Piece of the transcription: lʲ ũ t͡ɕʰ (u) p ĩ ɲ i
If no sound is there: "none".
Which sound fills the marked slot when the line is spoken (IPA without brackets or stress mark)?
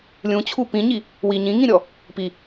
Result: u